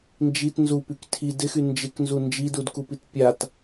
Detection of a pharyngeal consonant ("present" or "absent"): absent